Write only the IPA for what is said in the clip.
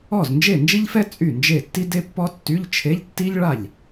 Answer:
ɔ˥˩ z n d͡ʒ e˥˩ n d͡ʒ i˥ ʎ f ɛ˥ t͡sʼ y˥˩ n d͡ʒ e˥˩ tː i˥ d e˥ pː ɔ˥ tː y˧˥˧ ʎ t͡ʃʰ e˧˥˧ ʎ tː i˥ ʎ ɭ a˥˩ ʎ

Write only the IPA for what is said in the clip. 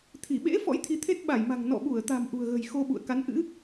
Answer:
t̪ʰ i˧˩ ɓ ḛ˧˥ f ɔ̰˧˥ j t̪ʰ i˨˦ t̪ʰ e˦˥ t̚ ɓ a˧˩ j m a̤˨˩ ŋ n ɔ̰˧˨ ɓ u˧˩ ə̯ t̪ a̤˨˩ m ʔ ṳ˨˩ ə̯ ɣ ə̤˨˩ j x o˧ ɓ ṵ˧˨ ə̯ k a˨˦ n ʔ ɨ̰˧˥

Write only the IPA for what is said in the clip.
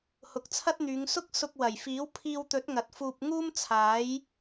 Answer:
h ʊ˨ k̚ t͡sʰ ɐ˥ t̚ n̪ yː˨˧ ŋ s ʊ˥ k̚ s ʊ˧ k̚ w ɐ˨˩ j f iː˨˥ w pʰ iː˧ w t̪ ɵ˨˥ t̚ ŋ ɐ˨ t̚ f uː˧ p̚ ŋ uː˥ m t͡sʰ aː˨˥ j

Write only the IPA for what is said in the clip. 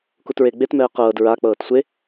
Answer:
k u t ɹ e ɡ͡b e t m ɛː q ɤː d ɹ a k͡p ɤː t sʷ e

